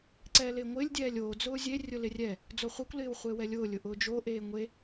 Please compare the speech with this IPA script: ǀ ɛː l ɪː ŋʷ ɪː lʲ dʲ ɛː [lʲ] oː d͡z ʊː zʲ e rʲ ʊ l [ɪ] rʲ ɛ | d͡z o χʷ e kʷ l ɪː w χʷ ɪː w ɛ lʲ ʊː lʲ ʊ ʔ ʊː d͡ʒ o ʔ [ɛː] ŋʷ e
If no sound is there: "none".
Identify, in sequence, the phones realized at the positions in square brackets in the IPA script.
lʲ, ɪ, eː

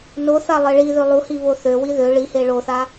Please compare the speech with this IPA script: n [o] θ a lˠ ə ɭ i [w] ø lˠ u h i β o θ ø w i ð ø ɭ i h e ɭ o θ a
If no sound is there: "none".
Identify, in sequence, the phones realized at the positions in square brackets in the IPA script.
o, ð

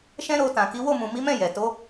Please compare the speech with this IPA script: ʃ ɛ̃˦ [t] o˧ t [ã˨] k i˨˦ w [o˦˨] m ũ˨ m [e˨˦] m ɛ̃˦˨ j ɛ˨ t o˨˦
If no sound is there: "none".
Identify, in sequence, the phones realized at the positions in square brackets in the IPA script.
ɾ, ã˨, o˦˨, i˨˦

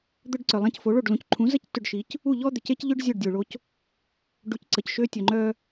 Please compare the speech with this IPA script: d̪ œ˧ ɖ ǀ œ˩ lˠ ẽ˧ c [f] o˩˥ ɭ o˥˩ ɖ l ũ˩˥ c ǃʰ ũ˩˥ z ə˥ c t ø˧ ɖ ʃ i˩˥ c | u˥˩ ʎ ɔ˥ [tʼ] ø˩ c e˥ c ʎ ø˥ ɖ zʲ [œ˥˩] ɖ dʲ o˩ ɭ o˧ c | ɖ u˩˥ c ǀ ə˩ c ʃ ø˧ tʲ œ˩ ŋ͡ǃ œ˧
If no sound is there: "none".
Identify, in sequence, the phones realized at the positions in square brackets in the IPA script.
f, d̪, œ˥˩

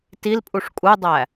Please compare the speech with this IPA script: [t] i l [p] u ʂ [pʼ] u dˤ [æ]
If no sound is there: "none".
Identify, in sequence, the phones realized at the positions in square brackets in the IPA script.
t, pʼ, kʼ, æ

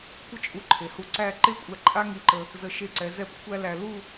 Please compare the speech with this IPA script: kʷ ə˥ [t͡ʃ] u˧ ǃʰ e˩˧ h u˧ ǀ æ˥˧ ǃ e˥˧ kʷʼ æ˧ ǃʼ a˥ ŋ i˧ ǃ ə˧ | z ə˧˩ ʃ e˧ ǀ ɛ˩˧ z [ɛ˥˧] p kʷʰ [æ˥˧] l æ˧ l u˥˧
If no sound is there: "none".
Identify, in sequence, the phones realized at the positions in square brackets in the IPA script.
t͡ʃʼ, ɛ˥˧, æ˥

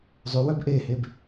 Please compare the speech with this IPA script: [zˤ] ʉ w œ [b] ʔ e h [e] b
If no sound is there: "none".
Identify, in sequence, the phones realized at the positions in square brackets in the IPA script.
zˤ, b, e

